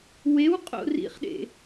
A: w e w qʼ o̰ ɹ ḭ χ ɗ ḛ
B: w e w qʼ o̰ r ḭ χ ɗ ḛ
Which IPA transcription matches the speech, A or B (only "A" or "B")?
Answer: B